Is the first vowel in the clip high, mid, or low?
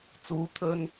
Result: high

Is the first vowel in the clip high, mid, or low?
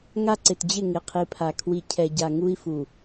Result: low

